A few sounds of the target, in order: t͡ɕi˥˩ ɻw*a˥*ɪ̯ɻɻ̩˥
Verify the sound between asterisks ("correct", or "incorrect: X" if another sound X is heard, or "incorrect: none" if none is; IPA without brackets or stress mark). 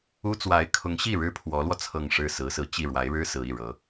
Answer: incorrect: a˧˥